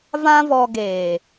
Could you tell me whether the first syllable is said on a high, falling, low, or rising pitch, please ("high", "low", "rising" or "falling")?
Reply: high